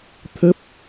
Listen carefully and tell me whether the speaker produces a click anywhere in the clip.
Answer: no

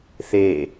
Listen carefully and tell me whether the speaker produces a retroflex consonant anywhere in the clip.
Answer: no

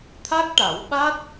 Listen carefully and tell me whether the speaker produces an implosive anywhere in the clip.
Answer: yes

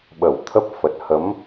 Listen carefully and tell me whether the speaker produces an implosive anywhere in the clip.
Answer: yes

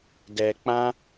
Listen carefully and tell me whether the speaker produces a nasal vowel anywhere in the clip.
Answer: yes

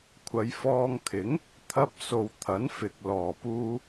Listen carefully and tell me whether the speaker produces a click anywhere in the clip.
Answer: no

